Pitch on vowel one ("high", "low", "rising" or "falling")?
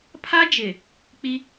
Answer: high